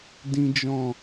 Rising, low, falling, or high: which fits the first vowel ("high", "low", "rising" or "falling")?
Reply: high